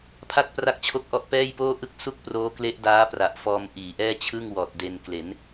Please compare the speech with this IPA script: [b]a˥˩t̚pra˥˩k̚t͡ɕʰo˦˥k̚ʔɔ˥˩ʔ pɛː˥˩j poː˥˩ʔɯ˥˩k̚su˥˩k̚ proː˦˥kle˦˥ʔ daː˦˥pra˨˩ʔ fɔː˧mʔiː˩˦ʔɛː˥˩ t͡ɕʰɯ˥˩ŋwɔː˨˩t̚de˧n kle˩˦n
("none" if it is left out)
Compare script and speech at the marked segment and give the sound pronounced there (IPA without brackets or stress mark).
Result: pʰ